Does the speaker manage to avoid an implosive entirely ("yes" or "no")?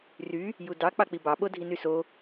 no